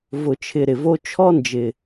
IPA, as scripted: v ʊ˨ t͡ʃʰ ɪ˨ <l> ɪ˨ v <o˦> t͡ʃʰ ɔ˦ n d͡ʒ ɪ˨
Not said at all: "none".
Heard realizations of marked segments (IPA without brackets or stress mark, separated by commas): ɾ, o˦